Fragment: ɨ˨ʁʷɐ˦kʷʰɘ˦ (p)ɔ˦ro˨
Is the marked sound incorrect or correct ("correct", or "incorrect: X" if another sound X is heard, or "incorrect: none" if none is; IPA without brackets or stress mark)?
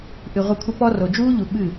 correct